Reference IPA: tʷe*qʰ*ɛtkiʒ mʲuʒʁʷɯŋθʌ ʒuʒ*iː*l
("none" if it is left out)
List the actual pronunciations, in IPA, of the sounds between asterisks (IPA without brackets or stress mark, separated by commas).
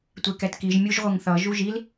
k, i